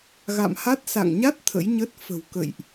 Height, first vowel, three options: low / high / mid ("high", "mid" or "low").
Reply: low